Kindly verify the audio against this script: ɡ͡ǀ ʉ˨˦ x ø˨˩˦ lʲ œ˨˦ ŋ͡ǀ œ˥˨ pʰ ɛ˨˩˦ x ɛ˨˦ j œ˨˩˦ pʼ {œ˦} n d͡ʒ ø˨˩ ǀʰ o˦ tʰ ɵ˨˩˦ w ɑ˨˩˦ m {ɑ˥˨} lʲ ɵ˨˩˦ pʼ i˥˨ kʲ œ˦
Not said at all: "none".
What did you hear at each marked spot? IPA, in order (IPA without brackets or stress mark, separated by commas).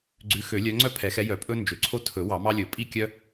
ɵ˦, ɑ˦